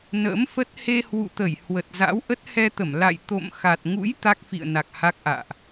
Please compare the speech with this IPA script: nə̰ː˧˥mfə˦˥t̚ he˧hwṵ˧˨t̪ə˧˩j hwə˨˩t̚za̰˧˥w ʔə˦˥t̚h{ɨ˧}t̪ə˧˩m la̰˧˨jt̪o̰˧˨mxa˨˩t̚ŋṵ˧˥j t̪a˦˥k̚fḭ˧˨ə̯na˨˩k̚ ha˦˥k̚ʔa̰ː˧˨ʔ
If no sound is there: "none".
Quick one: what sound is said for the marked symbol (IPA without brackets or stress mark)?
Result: ɛ˧